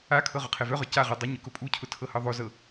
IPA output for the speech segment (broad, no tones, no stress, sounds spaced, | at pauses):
a kʰ ɤ ʁ ʊ qʰ ɛ v œ ʁ œ c a ʁ u dˤ ə ɲ ʊ k ʊ pʼ u cʰ ʊ tʰ ɤ h ɤ ðˤ o z ɤ